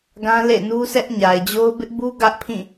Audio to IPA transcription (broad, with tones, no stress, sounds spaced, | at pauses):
ɡ ã˦ l ḛ˦˨ n u˦ s ɛ˦ ʔ ɲ a˨ ɪ̯ d͡ʑ o˦ ʊ̯ b ɪ˦ ʔ b u˦ ɡ ä˦ ʔ pʰ ĩ˦˨